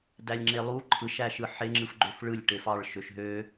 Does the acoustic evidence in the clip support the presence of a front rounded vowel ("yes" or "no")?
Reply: yes